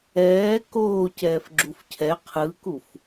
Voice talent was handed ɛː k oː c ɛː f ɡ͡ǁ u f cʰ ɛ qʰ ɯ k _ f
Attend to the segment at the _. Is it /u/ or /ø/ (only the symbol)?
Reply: u